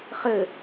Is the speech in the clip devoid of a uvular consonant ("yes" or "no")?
no